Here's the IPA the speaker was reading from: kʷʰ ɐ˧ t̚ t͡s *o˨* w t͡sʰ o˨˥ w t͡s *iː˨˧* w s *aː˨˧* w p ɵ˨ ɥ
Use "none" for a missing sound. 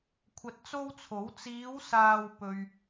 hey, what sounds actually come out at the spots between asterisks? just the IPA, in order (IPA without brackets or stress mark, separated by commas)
o˥, iː˨˧, aː˨